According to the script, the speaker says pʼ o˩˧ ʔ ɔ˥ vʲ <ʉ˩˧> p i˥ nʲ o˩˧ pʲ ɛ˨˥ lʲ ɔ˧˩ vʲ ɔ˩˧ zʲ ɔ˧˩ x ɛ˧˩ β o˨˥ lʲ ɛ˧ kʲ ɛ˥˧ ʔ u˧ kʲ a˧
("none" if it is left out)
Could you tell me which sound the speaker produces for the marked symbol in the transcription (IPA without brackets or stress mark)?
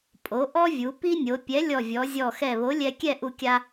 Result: u˩˧